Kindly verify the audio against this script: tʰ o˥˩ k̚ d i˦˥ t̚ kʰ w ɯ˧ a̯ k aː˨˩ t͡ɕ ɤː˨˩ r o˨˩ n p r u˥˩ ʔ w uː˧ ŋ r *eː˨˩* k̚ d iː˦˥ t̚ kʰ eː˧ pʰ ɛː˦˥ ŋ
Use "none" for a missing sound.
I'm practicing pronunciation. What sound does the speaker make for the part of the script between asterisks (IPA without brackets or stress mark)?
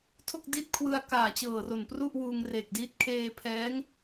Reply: eː˨˩